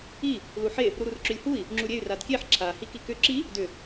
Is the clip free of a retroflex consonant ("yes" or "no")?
yes